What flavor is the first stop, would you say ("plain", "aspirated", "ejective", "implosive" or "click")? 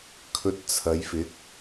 aspirated